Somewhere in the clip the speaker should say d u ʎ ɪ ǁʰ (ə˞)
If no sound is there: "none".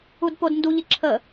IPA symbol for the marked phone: ə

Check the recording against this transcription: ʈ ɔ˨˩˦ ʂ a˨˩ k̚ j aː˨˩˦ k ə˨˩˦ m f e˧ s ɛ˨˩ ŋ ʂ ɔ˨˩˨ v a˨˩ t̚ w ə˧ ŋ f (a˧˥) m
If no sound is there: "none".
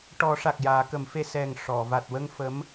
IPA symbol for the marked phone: ə˧˥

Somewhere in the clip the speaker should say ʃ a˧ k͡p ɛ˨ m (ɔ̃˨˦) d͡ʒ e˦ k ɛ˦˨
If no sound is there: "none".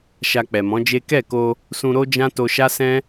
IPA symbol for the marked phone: ɔ̃˨˦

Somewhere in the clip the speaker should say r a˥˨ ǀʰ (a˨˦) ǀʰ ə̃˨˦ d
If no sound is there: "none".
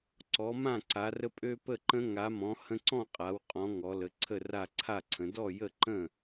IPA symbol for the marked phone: a˥˨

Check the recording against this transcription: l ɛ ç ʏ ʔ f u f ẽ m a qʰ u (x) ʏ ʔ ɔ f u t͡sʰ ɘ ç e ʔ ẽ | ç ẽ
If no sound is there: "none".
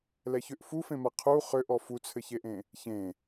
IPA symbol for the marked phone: χ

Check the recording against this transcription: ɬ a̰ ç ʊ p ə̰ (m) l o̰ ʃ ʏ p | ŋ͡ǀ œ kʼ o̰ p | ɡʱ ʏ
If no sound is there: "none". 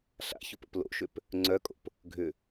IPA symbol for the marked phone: p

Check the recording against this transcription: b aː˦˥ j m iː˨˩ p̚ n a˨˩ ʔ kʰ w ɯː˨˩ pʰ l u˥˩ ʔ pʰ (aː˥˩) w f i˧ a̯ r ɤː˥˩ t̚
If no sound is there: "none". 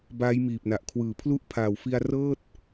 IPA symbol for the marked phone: aː˨˩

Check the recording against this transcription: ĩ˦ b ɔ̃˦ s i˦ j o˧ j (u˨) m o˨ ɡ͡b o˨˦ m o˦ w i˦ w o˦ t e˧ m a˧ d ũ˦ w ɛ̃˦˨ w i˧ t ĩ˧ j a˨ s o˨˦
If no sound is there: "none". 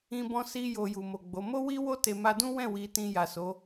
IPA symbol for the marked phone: u˨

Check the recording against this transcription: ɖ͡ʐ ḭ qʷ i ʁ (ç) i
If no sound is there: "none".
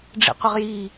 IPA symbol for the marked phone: j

